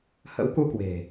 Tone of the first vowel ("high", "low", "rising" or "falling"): rising